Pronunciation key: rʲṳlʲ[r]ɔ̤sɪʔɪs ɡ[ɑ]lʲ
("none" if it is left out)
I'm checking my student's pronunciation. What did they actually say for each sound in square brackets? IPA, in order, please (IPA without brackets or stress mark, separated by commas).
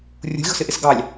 ɣ, ɑ